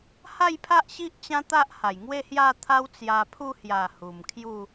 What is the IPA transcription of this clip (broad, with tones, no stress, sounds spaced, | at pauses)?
h a˥˧ j pʰ a˦ ʔ ɕ i˦ ʔ t͡ɕ ã˦ t̪ a˦ ʔ h a˨˩ j ŋ w e˥˧ h j a˥˧ t̪ʰ a˦ w t͡s j a˧ pʰ u˥˧ h j a˨˩ h u˨˩ m kʰ j u˥˧